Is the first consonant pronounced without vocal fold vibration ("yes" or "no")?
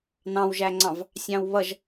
no